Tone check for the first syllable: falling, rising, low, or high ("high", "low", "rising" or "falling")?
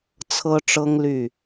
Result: high